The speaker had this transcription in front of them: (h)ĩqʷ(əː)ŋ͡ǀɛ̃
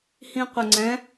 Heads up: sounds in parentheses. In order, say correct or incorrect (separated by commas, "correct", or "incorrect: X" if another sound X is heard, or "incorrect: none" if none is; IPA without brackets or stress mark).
correct, incorrect: ə